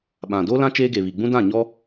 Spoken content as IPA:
ɓ ã˨ d oː˦ l ã˦ t͡ʃ eː˦ ɡ e˨ β i˨ ɡ͡b ũ˦ d ã˦˨ ɲ ɔ˦

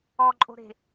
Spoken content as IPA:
ɔ ǃʼ o̤ ɾ e̤

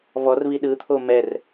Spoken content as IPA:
v ɔ r v i ɗ ɯ t̪ʰ o m ɛ r

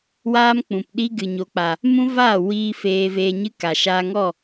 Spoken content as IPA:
w aː˦ m k͡p ũ˨ p ɗ i˦ ɡ ɨ˨ ɲ o˨ k͡p a˨ | m ũ˦ v aː˦˨ w iː˧ f eː˧ v eː˧ ɲ ɨ˦ k a˨ ʃ aː˧ ŋ ɔ˦˨

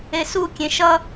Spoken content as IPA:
e s u kʲ ẽ ʃ ʌ

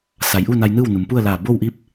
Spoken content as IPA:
s a˩˧ j ʔ u˥˨ n a˧ j n ɯː˥˨ w n u˩˧ m p u˥˨ ə̯ l aː˧˩ b oː˥˨ w ʔ iː˥˨ p̚

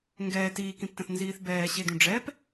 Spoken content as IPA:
ŋ ɡ ɛː t iː k ĩ p t ə̃ θ n z iː θ b ɛː ɕ e d ũ ɖ͡ʐ ɛ p

